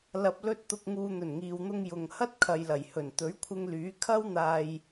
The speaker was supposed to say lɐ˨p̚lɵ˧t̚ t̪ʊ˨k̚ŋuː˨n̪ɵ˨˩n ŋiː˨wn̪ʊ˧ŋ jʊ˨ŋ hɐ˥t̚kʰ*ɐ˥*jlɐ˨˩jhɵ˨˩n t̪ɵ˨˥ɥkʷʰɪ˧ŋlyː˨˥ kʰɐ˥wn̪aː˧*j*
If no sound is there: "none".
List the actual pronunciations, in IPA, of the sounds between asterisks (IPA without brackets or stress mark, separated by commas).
ɐ˨, j